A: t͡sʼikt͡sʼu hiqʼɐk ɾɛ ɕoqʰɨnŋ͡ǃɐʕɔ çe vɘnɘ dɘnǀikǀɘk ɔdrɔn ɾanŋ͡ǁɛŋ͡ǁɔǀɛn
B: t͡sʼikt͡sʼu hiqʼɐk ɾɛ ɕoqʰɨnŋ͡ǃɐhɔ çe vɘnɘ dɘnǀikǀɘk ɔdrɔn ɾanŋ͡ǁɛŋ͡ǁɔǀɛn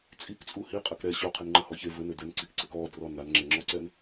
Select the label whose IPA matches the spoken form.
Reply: B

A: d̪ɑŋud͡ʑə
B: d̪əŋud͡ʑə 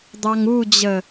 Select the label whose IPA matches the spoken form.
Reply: A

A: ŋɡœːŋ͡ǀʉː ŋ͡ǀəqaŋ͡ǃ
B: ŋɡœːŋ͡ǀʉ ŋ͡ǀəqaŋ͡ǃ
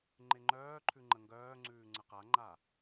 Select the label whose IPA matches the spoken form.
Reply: A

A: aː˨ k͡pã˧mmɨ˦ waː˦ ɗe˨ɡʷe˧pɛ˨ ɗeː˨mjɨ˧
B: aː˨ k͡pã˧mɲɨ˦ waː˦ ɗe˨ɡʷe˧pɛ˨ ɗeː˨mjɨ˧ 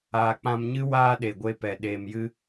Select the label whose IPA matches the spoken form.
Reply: B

